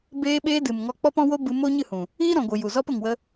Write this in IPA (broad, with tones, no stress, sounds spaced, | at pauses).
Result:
b eː˧ ɓ eː˧ d ɨ˨ m ŋ ɔ˧ k͡p ɔ˦ p ɔ̃˦ w o˦ b ɨ˧ m o˦ ɲ ɨ˦˨ h ũ˨ | iː˦ ɾ ɔ̃˨ ɡʷ ɨ˨ j u˨ z ɔ˧ p ə˨ ŋ w ə˧